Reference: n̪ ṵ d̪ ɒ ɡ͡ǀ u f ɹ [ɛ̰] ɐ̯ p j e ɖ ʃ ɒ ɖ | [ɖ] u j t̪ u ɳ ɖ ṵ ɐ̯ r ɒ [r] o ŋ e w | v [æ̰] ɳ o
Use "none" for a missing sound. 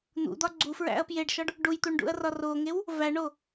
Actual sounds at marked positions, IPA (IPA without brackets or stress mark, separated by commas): æ̰, ɖ, r, æ